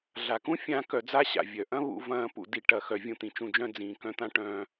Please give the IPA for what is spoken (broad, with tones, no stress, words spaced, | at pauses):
ɮa˨kũ˦fʲãː˧ kœ˧d͡za˦ɕa̰˨ vʲœ˨ʔɐ̃˦βṵ˧vɐ̃ː˧ pṵ˧di˧ ʈɐ˧xœ˧ vʲũ˧t̪ĩ˨t͡ʃũ˧d͡ʒœ̃˦ d͡zĩː˨kœ̃˦t̪ã˦ ʈœ̃ː˧